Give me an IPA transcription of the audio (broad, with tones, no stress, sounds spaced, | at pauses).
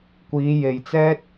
kʷ iː˨˧ j e˨ j t͡s ɛː˥ t̚